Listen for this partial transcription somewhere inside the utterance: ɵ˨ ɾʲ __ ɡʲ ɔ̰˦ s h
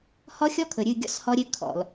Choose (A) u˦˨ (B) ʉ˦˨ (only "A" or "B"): B